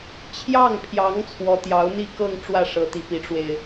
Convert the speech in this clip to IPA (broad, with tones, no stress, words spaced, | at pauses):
t͡ɕʰjɑ˥˩ŋpʰjɑ˧˥ŋ t͡sʰwɔ˧˥t̪jɑ˧˥ʊ̯n̪i˥˧kɤ˥˧ŋ ʈ͡ʂwä˥˩ʂɤ˧˥t̪i˧˥ pi˧˥ʈ͡ʂwe˧ɪ̯